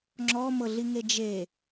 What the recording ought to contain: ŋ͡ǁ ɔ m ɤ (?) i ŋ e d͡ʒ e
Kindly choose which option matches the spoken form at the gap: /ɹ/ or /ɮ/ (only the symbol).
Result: ɮ